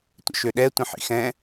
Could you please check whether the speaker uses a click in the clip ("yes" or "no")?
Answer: no